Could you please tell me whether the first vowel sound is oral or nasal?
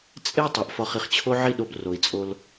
oral